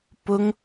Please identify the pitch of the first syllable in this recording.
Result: high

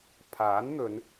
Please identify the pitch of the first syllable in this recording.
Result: rising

